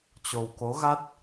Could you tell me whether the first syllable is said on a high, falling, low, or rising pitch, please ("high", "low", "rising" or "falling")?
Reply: low